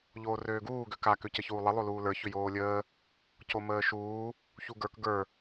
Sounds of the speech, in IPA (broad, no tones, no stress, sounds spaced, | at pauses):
ʎ oː r øː ɡ uː ɡ ø k a k ø c ə ç uː lˠ ə lˠ o l uː l ə˞ ç ʏ j oː lʲ əː | c o m əː ʃ uː | ç u ɡ ə˞ k ɡ ə˞